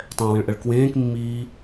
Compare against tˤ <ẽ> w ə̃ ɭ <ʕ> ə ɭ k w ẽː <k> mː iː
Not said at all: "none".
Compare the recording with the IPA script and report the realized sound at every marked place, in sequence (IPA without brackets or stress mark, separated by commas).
ɛ̃, ʔ, k